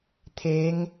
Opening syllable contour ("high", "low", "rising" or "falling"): rising